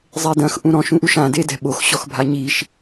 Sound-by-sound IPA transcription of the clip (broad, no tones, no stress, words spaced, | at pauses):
zˤedɐ̃x ʔũɾɔ̃ʃ ũʔuʃã dedɛ̤ɓox ɕɔxbʱaɲiʃ